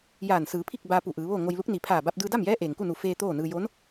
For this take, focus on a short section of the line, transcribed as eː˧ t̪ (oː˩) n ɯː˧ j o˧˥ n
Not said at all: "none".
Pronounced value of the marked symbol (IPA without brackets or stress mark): oː˥˨